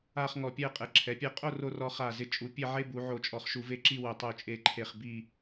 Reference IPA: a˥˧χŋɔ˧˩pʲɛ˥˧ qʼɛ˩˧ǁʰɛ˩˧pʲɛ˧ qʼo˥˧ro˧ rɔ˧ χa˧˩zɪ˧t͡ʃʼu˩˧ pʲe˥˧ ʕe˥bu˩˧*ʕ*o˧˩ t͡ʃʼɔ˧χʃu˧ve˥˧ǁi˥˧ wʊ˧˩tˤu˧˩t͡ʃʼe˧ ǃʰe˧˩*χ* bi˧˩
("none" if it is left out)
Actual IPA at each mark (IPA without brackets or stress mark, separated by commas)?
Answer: ʕ, χ